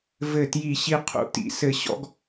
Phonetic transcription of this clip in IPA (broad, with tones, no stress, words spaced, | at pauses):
vɘ˥˧tji˥˧ɕi˥ qʰṵ˥˧tḭ˥sɘ˥˧ ɕɔ̰˥ɡ